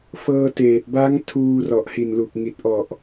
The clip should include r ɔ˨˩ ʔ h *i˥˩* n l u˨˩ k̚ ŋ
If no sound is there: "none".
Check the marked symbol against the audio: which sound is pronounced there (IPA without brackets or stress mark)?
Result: i˨˩